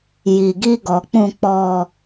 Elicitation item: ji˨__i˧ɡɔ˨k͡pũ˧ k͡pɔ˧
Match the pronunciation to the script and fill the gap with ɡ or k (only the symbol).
ɡ